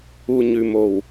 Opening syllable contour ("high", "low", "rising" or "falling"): low